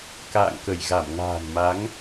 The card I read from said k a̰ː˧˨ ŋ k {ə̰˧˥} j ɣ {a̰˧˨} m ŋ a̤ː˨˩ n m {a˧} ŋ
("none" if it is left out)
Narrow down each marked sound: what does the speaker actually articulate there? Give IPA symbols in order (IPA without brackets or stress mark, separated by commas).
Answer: ə˧˩, a˧˩, a˨˦